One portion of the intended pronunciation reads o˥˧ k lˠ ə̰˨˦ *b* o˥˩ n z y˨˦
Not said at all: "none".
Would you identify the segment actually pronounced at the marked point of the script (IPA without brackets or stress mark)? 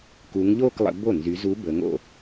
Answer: b